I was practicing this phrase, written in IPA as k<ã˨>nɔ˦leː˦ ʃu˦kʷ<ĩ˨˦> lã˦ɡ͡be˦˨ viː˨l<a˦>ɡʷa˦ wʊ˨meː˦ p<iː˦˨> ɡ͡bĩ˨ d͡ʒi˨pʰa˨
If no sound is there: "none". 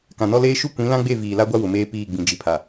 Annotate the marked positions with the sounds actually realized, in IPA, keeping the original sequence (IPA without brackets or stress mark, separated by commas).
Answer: ã˨, ĩ˨˦, a˦, iː˦˨